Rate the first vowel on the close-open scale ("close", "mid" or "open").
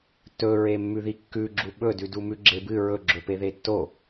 mid